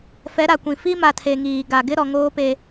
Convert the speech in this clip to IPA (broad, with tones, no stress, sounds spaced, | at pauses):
f ɛ˨˦ ɾ a˨ kʷ ĩ˨ f i˦ m a˨ tʰ e˨ ŋ iː˨ ɡ a˨ ɡ ɪ˦ ɾ ɔ˨ ŋ oː˦ p e˦